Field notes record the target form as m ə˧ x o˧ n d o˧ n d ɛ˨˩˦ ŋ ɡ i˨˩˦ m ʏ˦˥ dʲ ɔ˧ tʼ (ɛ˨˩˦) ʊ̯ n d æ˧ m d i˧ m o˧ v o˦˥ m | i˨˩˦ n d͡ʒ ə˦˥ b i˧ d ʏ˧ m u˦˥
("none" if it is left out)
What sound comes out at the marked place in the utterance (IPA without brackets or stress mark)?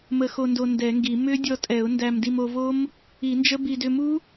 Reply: ɛ˨˩˦